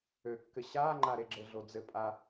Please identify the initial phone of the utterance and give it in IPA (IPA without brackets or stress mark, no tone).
ø